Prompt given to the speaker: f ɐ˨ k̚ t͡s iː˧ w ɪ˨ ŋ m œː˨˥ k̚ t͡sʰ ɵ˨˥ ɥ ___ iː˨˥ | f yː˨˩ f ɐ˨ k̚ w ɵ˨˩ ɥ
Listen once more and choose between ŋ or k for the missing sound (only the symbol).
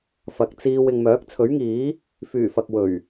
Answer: ŋ